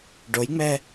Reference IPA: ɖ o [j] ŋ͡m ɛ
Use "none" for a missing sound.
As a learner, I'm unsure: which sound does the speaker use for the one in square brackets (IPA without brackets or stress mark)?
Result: j